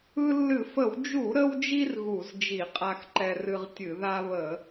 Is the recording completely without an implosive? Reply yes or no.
yes